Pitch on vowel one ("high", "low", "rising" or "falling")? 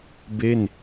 falling